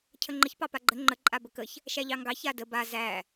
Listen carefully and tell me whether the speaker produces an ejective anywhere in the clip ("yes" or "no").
yes